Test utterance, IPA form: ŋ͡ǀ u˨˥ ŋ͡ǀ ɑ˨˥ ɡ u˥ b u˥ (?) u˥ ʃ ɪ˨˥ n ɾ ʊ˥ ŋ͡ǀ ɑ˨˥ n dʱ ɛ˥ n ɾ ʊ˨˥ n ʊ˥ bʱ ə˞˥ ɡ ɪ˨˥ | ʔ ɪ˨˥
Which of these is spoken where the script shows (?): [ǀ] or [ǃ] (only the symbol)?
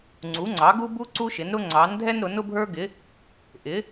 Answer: ǀ